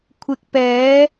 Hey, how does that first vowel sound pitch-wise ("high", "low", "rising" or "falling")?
low